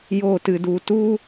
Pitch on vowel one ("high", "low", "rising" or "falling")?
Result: falling